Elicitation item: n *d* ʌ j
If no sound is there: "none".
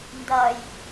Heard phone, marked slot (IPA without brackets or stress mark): d